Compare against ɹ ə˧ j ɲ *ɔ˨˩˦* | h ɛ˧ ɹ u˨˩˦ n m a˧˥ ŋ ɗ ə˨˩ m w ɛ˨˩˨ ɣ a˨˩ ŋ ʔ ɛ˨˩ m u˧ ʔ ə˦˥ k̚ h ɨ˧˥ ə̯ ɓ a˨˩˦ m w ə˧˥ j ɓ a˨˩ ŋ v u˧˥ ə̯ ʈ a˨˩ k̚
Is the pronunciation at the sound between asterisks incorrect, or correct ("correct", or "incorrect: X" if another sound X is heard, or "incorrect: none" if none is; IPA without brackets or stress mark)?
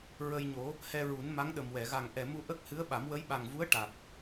incorrect: o˨˩˦